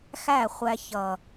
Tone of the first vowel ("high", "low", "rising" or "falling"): falling